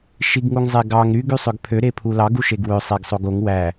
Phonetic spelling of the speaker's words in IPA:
ʃ i ɡ ŋ u ŋ zˤ e ɡ ɑ ŋ ɾ y ɡ y sˤ ø ɡ pʰ ø ɾ e pʰ u l ɑ ɡ u ʃ e ɡ w ø sˤ e ɡ sˤ o ɡ o ŋ w æ

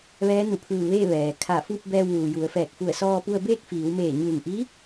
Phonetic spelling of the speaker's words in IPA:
ʋ ɛː˧˥ n u˧˩ pʰ ɯː˧˩ ʋ eː˥˨ ʋ ɛː˩ kʰ a˧˩ f u˥˨ p̚ b ɛː˧ w ʋ uː˩ j u˩˧ ə̯ f ɛː˧˩ k̚ f u˧˩ ə̯ s ɔː˧ p u˧ ə̯ b eː˥˨ k̚ f iː˩˧ w m eː˧˩ ɲ ɯː˧˩ ŋ ʔ i˧˥

